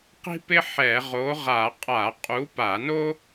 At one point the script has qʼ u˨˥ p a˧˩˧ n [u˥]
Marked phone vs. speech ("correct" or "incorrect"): incorrect